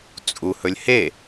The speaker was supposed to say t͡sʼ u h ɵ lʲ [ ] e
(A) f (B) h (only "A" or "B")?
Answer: B